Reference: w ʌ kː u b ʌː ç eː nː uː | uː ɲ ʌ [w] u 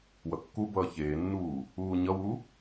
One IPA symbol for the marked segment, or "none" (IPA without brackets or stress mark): w